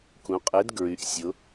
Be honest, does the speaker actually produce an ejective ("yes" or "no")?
yes